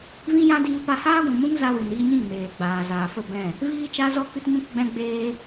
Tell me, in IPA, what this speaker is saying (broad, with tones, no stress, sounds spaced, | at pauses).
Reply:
v ĩ˦ j ã˦ d iː˧ p a˧ h aː˦ ɡʷ ũ˨ m ũ˦ ŋ z a˧ w ɨ˨ n iː˧ ɲ ĩ˦˨ m eː˨ ɡ͡b aː˨ z aː˨ f ə˦˨ b ɛ̃˦˨ | v iː˦ t͡ʃ a˦ z ɔ˦ k ɨ˦ t ɲ ũ˦ k ɡ͡b ɛ̃˦ ɡ͡b eː˦